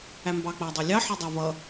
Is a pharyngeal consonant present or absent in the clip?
present